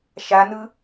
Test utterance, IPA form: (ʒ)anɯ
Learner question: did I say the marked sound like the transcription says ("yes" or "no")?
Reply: no